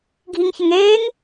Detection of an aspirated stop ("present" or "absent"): absent